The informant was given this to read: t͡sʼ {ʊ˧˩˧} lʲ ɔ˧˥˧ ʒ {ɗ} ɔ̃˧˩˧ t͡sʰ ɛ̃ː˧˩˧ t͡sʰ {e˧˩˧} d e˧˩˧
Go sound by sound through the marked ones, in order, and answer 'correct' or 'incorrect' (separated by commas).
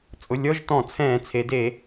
incorrect, incorrect, incorrect